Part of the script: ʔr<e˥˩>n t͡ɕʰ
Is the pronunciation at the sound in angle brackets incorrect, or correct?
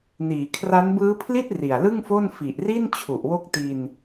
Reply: incorrect